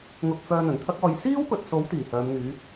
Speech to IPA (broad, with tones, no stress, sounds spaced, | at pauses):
ŋ ʊ˧ k̚ f œː˧ n̪ ɵ˨˩ n t̪ʰ ɐ˥ k̚ ɔː˧ j s iː˥ w p ɵ˨ t̚ s o˨˥ w t̪ iː˨˩ h œː˨˧ m ŋ yː˨˥